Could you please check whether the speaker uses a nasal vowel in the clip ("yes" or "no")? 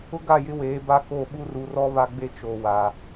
no